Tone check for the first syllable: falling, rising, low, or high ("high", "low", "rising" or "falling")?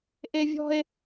high